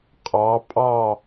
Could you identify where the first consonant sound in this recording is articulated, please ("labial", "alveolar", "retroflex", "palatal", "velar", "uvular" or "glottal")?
uvular